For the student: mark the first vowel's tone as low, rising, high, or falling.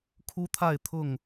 high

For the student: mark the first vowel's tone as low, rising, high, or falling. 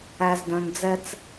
low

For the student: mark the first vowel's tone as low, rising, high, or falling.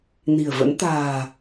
low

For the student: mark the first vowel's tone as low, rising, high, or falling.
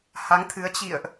rising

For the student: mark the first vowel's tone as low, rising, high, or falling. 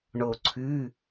low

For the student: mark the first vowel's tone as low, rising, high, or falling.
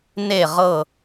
falling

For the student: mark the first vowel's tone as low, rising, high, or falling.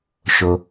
low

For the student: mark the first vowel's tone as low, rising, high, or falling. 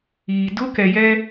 low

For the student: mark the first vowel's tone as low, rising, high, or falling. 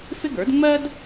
high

